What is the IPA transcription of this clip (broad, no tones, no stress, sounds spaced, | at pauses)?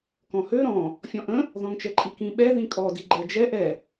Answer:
k ɔ̃ h ø ɾ ɔ̃ | fʲ ɔ̃ ʔ ə̃ | ð ɔ̃ ŋ t͡ʃ ɛ ǃʼ i k ĩ ɓ ɛ ð ĩ kʼ ɔ d i ɡ͡ǃ ɛ d͡ʒ ɛ ʔ ɛ